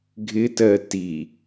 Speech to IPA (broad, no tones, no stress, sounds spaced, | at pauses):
ɡʱ ɪ t ɜ t i